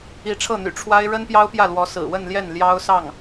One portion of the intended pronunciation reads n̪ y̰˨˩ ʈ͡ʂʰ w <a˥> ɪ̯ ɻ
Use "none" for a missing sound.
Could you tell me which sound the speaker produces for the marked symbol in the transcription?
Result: a˥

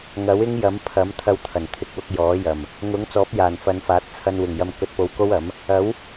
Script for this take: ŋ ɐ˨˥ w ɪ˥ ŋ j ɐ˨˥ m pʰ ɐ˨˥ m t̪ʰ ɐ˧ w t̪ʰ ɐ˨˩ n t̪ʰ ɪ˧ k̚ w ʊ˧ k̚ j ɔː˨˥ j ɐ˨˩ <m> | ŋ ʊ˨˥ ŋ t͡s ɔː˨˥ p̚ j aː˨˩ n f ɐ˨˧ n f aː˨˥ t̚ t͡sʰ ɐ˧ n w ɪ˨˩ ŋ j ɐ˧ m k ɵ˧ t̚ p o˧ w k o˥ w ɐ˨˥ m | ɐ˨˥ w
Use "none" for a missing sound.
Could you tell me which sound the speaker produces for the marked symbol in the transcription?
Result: m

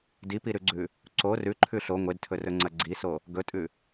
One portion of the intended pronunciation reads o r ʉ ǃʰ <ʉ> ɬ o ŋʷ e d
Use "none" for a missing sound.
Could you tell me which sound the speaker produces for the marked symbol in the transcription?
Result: ʉ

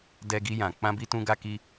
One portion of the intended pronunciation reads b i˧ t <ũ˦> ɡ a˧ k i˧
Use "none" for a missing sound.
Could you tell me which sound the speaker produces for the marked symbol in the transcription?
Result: ũ˧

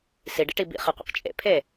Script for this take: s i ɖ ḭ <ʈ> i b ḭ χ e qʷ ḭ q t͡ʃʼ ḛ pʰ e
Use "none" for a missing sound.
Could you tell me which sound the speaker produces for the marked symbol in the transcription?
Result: ʈ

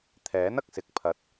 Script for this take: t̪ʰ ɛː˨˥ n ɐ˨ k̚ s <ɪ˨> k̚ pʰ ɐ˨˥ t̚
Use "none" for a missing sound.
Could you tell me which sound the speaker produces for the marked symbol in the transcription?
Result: ɪ˨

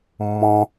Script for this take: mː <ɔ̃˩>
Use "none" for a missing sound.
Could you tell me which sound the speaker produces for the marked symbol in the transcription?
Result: ɔ̃˩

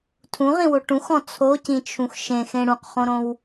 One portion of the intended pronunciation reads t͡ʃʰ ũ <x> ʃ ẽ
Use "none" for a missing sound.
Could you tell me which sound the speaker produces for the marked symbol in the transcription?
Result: x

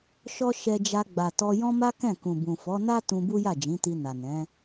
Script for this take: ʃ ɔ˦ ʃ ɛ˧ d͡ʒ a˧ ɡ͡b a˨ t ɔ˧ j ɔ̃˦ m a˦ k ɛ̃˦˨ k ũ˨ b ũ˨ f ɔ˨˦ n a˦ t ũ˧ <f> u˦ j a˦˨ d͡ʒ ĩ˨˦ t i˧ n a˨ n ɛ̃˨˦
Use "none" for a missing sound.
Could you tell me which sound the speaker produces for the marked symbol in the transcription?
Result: b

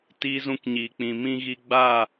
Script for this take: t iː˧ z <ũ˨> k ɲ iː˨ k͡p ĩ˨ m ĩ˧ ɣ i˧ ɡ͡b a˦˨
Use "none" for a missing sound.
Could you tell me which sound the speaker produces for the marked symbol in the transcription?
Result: ũ˧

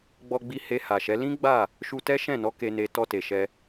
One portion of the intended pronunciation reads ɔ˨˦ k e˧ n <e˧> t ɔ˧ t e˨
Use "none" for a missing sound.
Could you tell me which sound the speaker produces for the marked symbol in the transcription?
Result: e˧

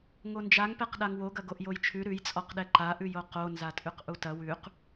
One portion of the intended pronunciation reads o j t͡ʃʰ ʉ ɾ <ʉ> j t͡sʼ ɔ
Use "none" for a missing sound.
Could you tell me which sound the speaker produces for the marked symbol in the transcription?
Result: ʉ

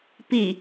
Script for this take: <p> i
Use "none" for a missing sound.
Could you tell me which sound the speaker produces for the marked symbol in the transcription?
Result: p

